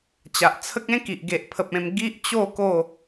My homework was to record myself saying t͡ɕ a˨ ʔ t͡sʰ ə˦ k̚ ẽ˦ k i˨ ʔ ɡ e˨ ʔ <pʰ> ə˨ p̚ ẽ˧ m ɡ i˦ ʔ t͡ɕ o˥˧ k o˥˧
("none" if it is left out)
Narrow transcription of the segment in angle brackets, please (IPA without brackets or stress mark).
pʰ